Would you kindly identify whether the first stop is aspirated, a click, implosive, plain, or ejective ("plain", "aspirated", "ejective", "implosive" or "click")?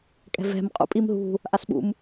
ejective